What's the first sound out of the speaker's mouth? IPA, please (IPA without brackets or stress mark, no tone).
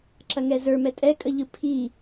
ǁ